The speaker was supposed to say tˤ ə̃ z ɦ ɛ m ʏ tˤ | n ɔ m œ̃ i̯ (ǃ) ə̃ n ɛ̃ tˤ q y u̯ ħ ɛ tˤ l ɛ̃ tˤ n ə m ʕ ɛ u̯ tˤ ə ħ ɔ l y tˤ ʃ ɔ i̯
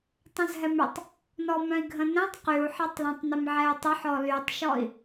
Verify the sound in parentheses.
incorrect: ɡʱ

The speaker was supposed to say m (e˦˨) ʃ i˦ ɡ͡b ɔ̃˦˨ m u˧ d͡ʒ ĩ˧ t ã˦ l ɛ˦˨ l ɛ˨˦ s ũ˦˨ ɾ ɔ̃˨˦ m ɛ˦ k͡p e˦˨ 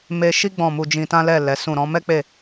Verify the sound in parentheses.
incorrect: e˧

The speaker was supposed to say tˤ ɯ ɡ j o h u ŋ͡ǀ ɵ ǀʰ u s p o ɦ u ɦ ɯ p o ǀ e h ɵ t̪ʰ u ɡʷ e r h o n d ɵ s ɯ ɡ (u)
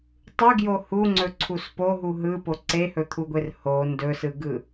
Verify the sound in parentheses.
incorrect: ɯ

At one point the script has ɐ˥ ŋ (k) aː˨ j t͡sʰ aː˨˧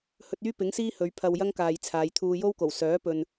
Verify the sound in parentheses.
correct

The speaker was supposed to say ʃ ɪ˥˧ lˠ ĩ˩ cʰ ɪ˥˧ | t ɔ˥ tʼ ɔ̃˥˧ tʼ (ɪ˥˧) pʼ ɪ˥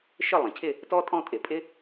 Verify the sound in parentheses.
incorrect: ɪ˨˩˦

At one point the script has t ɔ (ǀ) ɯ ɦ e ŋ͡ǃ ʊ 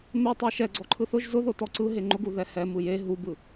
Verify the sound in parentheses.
correct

